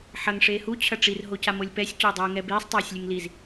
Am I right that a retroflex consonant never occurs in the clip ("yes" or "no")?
no